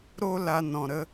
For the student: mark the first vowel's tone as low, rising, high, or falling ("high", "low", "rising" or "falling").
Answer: high